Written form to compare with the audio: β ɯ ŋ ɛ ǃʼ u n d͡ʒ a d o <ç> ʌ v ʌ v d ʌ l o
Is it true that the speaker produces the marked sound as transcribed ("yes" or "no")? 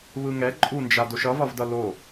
no